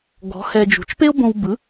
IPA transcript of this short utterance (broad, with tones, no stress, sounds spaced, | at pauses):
ɡ ɔ̤˩˥ h ɛ˧ d͡ʒ ṳ˩˥ t͡ʃ p e˥ o̯ b õ˧ w b ɯ˩˥